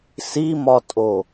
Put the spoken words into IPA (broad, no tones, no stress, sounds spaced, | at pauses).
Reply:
s i m ɒ tʼ o